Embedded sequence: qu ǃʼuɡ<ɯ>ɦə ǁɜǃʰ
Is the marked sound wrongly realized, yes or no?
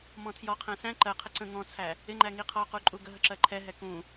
yes